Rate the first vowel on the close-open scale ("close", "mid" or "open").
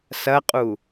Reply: open